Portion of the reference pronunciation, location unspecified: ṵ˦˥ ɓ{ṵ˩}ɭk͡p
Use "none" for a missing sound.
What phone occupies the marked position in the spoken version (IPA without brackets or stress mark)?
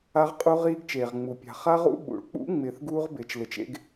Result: ṵ˩